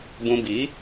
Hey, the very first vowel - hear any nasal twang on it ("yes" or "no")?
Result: yes